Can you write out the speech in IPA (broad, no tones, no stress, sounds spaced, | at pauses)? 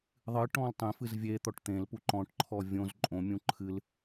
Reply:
ðˤ ɨ ʈ ɔ̃ l tˤ ẽ f ɨ z vʲ e t̪ ɔ ʈ t̪ ẽ l p u ǃ ɔ̃ ʈ ǃʰ ɔ vʲ õ z ǃʼ õ mʲ ũ ǃʰ ɨ l